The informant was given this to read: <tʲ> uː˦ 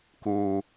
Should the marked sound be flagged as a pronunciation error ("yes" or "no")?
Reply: yes